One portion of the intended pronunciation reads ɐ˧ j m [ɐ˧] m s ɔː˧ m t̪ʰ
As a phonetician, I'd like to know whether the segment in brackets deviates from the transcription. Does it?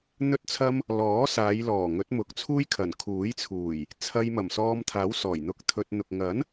yes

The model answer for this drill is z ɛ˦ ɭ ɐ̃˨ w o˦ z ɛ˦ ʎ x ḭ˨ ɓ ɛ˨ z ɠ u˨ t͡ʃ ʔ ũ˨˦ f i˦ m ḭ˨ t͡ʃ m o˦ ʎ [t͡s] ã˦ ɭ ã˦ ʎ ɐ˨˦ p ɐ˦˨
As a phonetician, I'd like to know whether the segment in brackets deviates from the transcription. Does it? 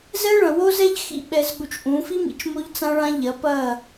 no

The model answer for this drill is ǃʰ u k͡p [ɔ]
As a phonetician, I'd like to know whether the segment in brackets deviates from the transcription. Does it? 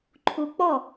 no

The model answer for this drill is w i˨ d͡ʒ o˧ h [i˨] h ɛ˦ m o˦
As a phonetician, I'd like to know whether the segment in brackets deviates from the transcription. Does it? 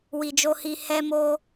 yes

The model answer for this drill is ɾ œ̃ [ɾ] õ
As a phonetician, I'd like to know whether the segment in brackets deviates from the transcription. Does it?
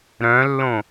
yes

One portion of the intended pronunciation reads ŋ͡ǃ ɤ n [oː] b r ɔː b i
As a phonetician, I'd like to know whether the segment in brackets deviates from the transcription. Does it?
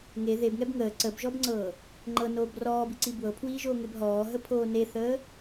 no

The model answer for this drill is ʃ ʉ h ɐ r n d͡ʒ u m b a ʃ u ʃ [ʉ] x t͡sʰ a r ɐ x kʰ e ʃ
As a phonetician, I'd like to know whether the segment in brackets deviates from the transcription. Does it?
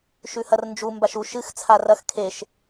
yes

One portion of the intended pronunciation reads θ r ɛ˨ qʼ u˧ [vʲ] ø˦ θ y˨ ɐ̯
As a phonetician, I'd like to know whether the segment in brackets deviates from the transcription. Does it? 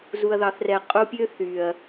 yes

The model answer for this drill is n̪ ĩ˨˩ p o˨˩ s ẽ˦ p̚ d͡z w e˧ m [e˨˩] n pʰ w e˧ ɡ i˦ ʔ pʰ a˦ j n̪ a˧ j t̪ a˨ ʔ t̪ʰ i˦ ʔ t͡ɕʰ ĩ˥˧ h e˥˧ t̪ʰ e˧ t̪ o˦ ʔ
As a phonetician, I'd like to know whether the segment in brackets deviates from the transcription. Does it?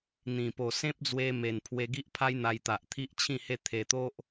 no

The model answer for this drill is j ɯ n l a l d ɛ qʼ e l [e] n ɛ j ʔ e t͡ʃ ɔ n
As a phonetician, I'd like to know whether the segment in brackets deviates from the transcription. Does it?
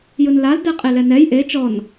yes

